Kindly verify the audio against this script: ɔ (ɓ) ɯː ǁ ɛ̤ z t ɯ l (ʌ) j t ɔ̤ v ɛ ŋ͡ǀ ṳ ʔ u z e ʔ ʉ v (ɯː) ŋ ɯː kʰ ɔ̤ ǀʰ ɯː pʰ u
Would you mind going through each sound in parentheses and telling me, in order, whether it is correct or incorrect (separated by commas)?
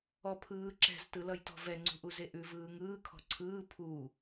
incorrect, correct, correct